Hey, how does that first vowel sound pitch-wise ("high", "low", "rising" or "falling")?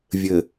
low